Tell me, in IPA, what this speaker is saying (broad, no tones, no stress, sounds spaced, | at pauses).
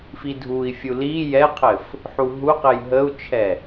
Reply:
f i dʱ u i̯ fʲ u l i j ɛ qʰ ɘ f | ħ u ɦ u q ɘ j ɦ ə u̯ t͡ʃʰ ɛ